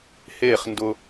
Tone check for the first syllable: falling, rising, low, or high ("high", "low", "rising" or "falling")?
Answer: falling